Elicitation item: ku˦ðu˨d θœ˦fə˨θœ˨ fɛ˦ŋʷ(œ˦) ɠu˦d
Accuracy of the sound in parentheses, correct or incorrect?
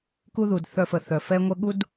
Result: incorrect